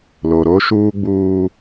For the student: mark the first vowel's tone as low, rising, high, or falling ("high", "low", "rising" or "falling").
low